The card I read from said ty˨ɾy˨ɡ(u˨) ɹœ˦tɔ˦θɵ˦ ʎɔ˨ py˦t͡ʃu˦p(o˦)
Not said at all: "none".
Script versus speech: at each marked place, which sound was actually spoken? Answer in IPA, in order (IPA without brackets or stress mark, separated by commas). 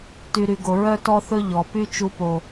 o˨, o˦